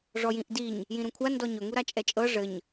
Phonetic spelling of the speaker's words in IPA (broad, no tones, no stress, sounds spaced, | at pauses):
ʐ ɔ j ĩ ʔ d i ɲ | j ĩ ɾ ũ kʷʰ a n d ɔ ɲ ɵ ŋ u ɾ a t͡ʃʼ ɛ t͡ʃʼ ɤ ʐ ɘ ɲ